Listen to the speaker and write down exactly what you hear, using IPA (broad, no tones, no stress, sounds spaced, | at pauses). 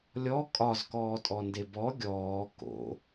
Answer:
lʲ ɔ kʼ ɒ z k ɔː tʼ ɔ n d e b ɔ ɡʲ ɔː k o̰